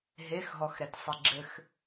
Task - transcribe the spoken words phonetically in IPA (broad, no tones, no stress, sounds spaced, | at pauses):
ɦ e x ɦ ɔ x ɾ ɛ t sˤ i ɡ͡ǁ ɘ x